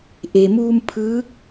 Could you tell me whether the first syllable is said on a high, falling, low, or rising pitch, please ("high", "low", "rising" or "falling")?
low